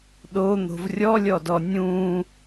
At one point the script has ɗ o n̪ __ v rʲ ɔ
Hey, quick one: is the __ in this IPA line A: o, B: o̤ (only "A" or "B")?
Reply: B